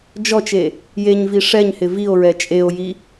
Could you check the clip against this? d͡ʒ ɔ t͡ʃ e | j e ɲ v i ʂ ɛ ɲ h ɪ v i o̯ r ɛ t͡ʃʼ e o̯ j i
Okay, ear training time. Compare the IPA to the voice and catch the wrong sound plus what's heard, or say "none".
r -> ɹ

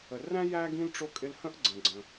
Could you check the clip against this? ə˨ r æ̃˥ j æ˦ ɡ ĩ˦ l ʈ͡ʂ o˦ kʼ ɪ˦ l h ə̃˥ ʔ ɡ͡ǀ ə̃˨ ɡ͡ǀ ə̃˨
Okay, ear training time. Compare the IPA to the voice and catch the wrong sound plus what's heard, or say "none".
none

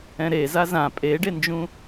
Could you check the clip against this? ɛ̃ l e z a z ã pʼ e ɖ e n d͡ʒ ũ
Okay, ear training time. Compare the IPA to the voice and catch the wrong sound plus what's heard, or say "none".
l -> ɾ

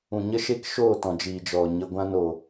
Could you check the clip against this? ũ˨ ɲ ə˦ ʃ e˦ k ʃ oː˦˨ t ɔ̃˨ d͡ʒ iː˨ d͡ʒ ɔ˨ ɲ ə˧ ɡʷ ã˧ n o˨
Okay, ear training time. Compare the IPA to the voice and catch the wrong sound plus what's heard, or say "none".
none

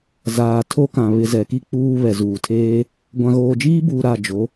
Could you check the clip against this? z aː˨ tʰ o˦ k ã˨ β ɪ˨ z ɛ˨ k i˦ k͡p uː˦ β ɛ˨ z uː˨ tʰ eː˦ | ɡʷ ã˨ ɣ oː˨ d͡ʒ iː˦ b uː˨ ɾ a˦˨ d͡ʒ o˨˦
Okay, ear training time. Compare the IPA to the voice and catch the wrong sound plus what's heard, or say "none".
none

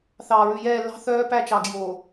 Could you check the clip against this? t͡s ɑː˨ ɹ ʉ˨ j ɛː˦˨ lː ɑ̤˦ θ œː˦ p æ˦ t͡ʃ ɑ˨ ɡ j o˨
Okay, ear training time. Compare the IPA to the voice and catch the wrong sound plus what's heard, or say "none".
t͡s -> θ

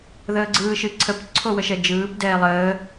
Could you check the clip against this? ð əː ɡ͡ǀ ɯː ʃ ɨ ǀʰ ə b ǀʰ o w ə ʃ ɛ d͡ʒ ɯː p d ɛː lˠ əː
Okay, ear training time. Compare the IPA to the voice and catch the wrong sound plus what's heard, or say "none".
b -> p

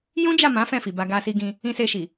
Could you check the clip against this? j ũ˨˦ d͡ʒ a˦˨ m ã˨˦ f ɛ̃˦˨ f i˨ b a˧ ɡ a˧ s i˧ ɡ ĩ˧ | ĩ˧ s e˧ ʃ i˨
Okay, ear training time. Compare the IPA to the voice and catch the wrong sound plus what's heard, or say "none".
ũ˨˦ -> ũ˦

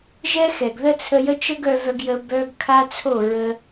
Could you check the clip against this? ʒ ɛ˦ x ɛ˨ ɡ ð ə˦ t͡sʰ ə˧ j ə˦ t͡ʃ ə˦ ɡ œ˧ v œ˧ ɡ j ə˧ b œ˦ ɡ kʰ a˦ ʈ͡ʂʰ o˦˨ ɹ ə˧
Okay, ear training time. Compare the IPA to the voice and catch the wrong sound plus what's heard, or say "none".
ʈ͡ʂʰ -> t͡sʰ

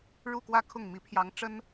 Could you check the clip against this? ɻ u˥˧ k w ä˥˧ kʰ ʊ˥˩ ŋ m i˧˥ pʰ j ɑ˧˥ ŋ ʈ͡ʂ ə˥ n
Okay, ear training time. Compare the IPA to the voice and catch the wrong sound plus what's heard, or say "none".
none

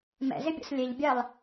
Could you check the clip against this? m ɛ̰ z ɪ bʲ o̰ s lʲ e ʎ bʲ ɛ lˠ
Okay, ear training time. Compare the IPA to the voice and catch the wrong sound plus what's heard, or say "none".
none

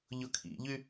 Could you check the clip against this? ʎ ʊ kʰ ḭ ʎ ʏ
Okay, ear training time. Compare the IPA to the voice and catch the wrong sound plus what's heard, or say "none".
ʏ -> y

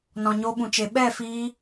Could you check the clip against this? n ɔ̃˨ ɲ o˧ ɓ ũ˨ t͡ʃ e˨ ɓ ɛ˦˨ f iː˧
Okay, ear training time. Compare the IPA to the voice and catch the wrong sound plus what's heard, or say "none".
none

